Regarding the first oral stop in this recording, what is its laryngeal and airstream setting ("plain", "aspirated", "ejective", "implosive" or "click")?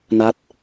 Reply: plain